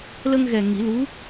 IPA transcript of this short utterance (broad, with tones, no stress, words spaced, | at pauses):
lə˧ŋɣɛ˨˩ ŋi˨˩˦lu˧˥